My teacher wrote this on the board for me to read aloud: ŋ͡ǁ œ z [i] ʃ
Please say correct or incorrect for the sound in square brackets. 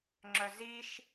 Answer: correct